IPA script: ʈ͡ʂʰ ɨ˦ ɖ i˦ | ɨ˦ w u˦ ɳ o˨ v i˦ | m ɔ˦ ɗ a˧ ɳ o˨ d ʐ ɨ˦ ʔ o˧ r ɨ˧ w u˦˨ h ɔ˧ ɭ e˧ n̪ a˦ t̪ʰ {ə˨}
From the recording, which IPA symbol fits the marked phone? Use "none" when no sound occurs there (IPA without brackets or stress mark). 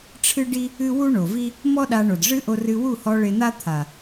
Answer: a˨